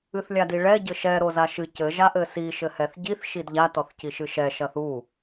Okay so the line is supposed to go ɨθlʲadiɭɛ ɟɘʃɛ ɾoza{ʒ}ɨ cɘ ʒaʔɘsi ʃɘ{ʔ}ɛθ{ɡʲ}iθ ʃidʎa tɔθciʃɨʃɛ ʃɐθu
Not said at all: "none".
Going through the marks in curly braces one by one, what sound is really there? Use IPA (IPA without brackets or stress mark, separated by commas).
ʃ, h, ɟ